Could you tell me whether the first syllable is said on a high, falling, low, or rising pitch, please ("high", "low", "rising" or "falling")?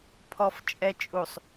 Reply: low